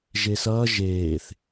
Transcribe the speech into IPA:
ʒesʌː ʒeːθ

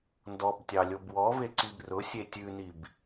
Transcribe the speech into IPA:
ndɔbtʲɑlʲob wɔveǀib rʊsʲe tʲʉnib

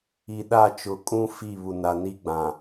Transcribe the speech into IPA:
i˨ɗa˦˨t͡ʃʊ˨˦ kʼũ˦ fi˦˨βu˨ na˨ni˦ɡ͡bã˨

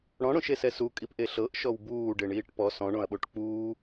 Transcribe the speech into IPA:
ɽɔ̃ɽõʃesɛ sukʼipʔe ɬɤʔʃɔw buːɖeɳiːʈ pɔ sɔ̃ɳõɐ̯ɓoʈ k͡puː

